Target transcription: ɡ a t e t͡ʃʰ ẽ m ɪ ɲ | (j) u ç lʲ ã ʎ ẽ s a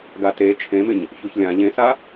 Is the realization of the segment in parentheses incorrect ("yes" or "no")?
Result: yes